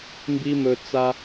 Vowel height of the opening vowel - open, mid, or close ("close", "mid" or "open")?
close